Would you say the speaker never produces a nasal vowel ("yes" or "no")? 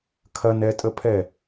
yes